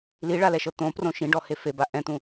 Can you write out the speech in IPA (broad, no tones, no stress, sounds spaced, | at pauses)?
l i ɭ a l ɛ ʃ ɤ t̪ õ p r õ ʃ ĩ ɖ ɔ h e f e b a ʔ ɛ̃ t̪ ũ